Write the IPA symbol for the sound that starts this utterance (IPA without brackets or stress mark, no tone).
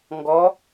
ŋ